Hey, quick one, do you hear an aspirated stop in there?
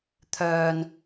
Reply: yes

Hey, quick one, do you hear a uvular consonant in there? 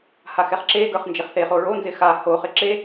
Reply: yes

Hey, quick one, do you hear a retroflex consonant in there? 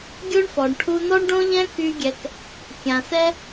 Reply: yes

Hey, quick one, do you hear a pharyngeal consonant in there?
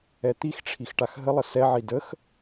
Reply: yes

